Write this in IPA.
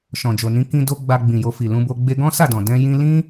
ʃ ɔ̃˨ d͡ʒ o˨ n ĩ˨˦ k ĩ˧ d o˧ ɡ͡b a˧ ɡ͡b ĩ˨ j o˧ f i˨ l ũ˧ b o˧ ɡ͡b e˧ ɡ ɔ̃˦ s a˦˨ d ɔ̃˨ d ɛ̃˧ j ĩ˧ l ĩ˦

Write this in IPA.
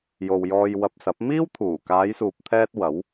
j o˨ w j ɔː˧ j w ɐ˧ p̚ s ɐ˨˥ p̚ m iː˥ w t̪ʰ uː˨˩ k aː˨˧ j s uː˨ p̚ t̪ʰ ɛː˧ t̚ w ɐ˨˥ w

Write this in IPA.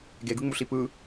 ɡ e ɡ ɯ ŋ͡m u ɬ i p ɯ

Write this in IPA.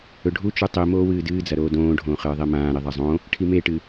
ɵ ɖʱ u t͡ʃ ʉ tˤ i m oː w ɨː d ɨː d͡z ɐ ɾ oː d õː ɖʱ õː χ ɨː ðˤ i m ãː ɾ i ðˤ a zˤ õ | ʈʰ i m e ʈ ɨ

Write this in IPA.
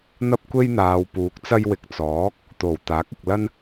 n̪ ɐ˥ p̚ kʷ e˥ j n̪ aː˨ w p uː˨˥ k̚ t͡s ɐ˥ j w ɪ˨ k̚ t͡s ɔː˨˥ k̚ | t̪ o˨˩ w t̪ aː˨˥ k̚ ɪ˨ k̚ l ɐ˥ n

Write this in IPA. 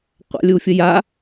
qʷ a̰ lʲ u fʲ ə j a

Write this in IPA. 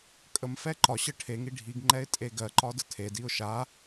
kʼ ə m f ɛ ǃ ɒ ɕ ə ʈʰ e ŋ i ɖʱ i ɡ ŋ͡ǃ ɛ ɪ̯ tʼ e ɡ ɜ ǃ ɒ d ə tʰ e d i ʊ̯ ʃ a

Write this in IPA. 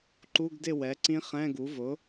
ǃ u˧˥˧ ɡ d ɪ˥˩ w ɛ˩˥ ǀ ĩ˦˥ χ ɛ̃˧˥˧ ɡ u˩˥ v ʊ˩˥

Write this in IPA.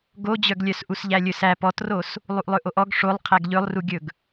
ɡ o d͡ʑ œ ɡ lʲ œ s ʔ u s ʎ æ lʲ ɵ s æ p ɔ t r o s | lˠ u ʔ lˠ ɵ ʔ o ʔ ɔ ɡ ʂ o lˠ qʰ æ ɡ ʎ ɵ lˠ r u ɡʲ ɵ ɡ

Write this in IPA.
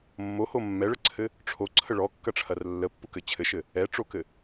mː o h o mː ɛ ɭ ə ǀʰ ɘ | ʈ͡ʂʰ o ǀʰ ə ɭ ɔ kː ɐ ʈ͡ʂʰ ɐ r lː ə pː u k ɘ t͡ɕʰ ɘ ʃ ɘ | ɛ ʈ͡ʂ o k ɘ

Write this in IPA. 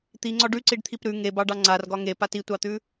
t̪ i ŋ͡ǀ ɒ ɖ ʉ ǀ i ɖ t̪ʰ i p ɾ ʉ ŋ e b ɑ ɖ ɑ ŋ͡ǀ a r ɡ ɒ ŋ e p a t i tʷ ɑ t̪ ʉ

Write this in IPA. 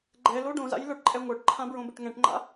ɡ͡ǃ ɛ l o ɖ õ z a̰ j l ə˞ ʈ ǃʼ ɛ ŋʷ ə˞ ʈ ǃʰ ã b ɹ õ b e ʈ ŋ ɛ̃ ʈ ŋ͡ǃ a̰

